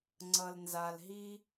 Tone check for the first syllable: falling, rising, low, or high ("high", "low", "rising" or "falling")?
low